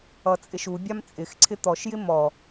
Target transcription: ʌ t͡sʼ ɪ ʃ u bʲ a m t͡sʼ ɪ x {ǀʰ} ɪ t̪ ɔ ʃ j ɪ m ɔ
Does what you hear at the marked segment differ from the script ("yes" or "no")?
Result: no